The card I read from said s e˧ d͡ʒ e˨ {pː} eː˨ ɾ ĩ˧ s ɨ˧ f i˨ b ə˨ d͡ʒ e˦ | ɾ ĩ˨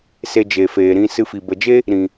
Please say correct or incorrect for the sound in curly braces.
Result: incorrect